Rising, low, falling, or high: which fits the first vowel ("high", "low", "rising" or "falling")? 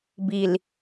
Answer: low